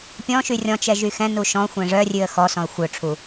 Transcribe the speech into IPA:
pʲɔ̃ʃy rʲɔ̃t͡ʃɛ ʒyxɛ̃nu ʃɔ̃xʷɛ̃ ʐœrʲʉə̯ xɔsɔ̃ə̯ xʷœʈ͡ʂʰu

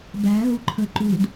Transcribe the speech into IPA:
bæ̤ ɦṳǃʰə̤ ǃṳd

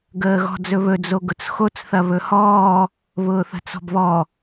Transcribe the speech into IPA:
ɡəːɣɔ̤d͡zɵβɵ d͡zoɡʊt͡sxot͡s θɐβɵhɔː | βʊːθə̤t͡sɔ̤bβɔ

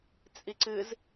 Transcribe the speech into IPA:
t͡sʼiǀɨz

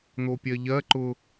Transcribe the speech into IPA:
n̪opʲɜʎɜ ǃʊ

